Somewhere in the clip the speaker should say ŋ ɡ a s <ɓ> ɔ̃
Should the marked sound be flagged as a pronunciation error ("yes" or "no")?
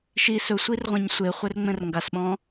no